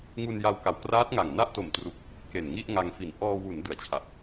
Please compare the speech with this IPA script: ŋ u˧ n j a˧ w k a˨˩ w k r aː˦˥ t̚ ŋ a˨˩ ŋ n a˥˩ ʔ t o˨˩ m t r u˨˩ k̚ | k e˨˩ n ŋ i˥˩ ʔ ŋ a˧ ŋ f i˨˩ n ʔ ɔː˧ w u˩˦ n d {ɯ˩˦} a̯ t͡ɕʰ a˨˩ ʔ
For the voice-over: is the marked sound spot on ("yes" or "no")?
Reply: yes